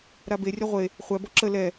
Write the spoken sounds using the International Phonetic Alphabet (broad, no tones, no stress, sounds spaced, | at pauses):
ɾ a b e rʲ ɐ ʁʷ e | χʷ æ b ɔ ǁ ə l ɛ